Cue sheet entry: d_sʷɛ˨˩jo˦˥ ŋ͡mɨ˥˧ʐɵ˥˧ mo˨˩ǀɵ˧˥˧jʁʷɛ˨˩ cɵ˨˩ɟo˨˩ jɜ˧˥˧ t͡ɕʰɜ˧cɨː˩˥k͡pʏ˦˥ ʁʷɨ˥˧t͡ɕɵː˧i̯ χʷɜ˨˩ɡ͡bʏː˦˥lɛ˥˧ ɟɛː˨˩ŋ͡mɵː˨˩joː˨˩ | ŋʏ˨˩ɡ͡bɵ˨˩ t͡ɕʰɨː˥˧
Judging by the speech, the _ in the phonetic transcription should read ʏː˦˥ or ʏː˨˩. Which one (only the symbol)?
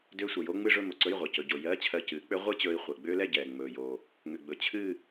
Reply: ʏː˦˥